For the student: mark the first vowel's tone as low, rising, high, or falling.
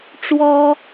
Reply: high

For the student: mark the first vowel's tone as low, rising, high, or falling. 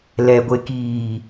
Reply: low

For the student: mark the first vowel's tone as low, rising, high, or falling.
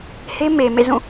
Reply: high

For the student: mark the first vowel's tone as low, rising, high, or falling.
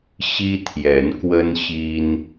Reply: high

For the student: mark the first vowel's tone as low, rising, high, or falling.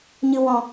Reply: low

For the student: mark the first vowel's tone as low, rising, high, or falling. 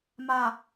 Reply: low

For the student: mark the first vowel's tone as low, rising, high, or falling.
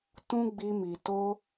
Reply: high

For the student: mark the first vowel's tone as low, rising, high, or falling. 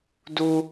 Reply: low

